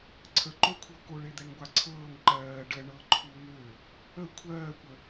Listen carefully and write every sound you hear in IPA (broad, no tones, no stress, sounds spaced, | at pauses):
ǀʰ ə ǃ o kʷʰ ɤ k o ɭ e d̪ ɛ ŋ ɡʷ a ǀʰ ɤː ŋ ǃ ɜː ɖ ə ɳ ɤ ǃʰ u ŋ ø | ə kʷʰ ɜː kʷ ə